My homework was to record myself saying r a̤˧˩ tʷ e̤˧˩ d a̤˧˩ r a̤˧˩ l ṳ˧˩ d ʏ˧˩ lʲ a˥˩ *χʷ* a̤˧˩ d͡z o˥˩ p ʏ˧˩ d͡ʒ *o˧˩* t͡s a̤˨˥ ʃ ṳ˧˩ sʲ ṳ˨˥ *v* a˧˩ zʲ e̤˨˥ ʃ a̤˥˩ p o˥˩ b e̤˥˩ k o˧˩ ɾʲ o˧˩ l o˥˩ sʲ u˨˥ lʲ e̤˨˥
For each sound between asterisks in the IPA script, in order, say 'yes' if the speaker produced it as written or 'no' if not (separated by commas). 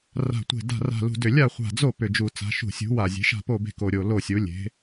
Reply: yes, no, no